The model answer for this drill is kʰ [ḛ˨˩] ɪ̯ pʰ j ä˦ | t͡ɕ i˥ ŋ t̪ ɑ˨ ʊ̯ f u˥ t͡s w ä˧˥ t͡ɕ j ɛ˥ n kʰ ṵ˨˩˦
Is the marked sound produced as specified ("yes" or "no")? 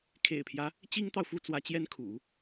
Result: yes